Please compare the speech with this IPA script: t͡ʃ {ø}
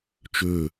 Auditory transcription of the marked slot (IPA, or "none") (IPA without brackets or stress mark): ø